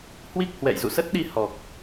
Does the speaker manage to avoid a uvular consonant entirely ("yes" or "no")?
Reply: yes